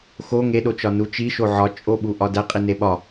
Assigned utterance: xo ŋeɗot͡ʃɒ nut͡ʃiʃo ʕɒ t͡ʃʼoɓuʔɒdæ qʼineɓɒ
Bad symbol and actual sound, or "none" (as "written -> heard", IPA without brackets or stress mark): none